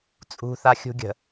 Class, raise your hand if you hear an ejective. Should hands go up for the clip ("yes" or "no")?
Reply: yes